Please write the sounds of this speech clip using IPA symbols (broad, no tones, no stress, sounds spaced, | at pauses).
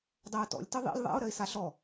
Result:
dˤ ɜ ʊ̯ t ɔ̰ lʲ t ɘ ðˤ ḭ lʲ ðˤ a̰ ʊ̯ ɾ ɜ ɪ̯ s a ɬ ɔ